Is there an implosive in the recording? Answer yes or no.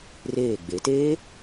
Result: no